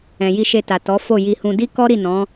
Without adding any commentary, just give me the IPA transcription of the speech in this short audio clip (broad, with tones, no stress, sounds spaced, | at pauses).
ɛ̃˨ j i˧ ʃ e˧ t a˨ t ɔ˨˦ f o˦˨ j i˧ h ũ˧ d i˦ k ɔ˦ ɾ i˦˨ n ɔ̃˨˦